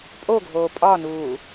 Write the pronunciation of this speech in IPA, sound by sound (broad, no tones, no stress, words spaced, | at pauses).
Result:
pʼoɡʱoː pʼɒnuː